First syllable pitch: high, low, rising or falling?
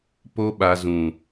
high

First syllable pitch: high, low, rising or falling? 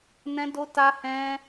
high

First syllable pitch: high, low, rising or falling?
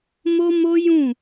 high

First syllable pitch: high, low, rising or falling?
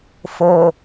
low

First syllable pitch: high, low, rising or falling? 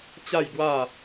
falling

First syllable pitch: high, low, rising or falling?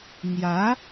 rising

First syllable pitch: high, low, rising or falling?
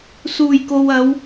low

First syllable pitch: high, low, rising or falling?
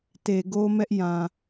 low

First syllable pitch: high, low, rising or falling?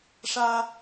high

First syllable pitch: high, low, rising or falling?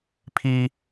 high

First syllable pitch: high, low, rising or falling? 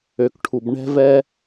low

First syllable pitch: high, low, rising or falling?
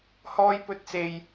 high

